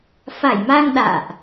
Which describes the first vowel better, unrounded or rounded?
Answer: unrounded